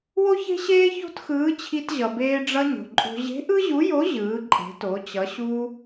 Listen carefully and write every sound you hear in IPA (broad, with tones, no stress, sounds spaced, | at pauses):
w o˥ ç e̤˥ ɕ eː˥ ç o̤˥ t x ɯː˧˥ t͡ɕʰ i˧ t ʑ ʌ˩ b eː˧ ɖ͡ʐ ʌ˧ ɲ o̤˩ ǃʼ o̤˧ ʑ e̤˧˥ ʔ ɯ˥ ʑ u˧˥ j o˧˥ ʑ ɯː˩˧ ǃʼ e̤˩˧ t o˩˧ t͡ɕ ʌ˩˧ ɕ u˧